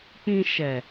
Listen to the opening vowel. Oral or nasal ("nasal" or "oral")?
nasal